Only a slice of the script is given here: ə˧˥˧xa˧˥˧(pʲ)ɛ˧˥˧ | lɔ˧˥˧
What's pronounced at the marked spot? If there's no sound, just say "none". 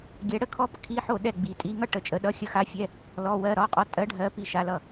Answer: fʲ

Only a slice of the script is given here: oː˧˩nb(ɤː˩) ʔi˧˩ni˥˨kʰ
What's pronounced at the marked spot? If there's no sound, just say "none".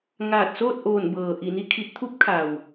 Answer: ɤː˩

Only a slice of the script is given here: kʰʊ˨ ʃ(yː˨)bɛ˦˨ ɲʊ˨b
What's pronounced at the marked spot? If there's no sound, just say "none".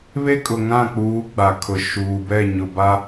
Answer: uː˨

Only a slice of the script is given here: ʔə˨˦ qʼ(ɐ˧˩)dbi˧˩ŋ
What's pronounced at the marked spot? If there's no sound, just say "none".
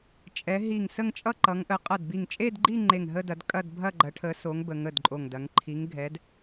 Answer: ɐ˧˩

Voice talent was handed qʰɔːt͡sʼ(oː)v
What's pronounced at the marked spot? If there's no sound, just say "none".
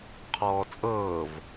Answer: ɤː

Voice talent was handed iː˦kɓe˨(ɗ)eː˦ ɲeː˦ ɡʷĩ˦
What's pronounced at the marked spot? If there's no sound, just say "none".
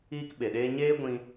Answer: ɗ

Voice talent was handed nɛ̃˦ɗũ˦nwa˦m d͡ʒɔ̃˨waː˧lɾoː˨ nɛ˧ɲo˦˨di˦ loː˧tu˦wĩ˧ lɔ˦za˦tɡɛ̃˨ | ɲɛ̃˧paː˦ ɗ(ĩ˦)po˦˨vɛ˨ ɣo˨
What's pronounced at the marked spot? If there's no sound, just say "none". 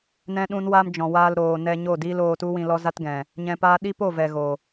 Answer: i˦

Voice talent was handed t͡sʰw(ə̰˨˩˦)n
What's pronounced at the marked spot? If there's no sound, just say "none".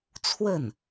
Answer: ə˥˩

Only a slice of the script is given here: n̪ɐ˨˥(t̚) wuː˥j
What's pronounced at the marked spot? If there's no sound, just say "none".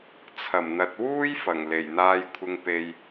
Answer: t̚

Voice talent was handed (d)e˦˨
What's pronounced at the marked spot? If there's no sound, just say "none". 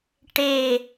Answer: ʈ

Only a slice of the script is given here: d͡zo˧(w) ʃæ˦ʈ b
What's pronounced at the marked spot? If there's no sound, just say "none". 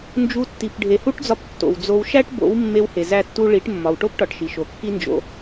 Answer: w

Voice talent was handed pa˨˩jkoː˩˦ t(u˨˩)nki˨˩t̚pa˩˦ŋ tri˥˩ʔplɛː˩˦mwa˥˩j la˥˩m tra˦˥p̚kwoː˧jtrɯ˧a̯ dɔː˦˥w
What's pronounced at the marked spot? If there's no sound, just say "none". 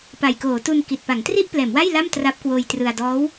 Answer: u˧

